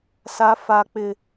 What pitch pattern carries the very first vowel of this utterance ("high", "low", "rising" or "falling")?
high